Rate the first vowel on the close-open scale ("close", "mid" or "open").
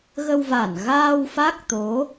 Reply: mid